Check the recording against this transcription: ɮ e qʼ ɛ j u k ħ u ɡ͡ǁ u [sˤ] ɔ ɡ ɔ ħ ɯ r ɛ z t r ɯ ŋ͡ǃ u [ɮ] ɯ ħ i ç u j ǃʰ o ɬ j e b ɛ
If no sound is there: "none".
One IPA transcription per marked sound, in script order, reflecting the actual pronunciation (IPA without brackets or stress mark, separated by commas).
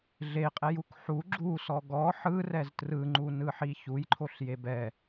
s, n